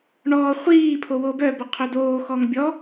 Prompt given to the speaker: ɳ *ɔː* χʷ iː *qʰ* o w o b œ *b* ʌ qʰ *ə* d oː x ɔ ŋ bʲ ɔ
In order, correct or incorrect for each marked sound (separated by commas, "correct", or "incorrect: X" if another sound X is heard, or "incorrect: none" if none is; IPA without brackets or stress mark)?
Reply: correct, incorrect: pʰ, correct, incorrect: œ